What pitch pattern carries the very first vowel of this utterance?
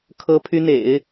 high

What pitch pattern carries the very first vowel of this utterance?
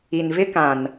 low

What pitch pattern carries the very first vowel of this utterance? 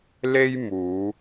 high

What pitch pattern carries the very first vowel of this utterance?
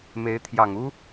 rising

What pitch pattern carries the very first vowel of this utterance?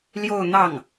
falling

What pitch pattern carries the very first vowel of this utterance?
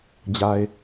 low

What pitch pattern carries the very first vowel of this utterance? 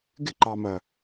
falling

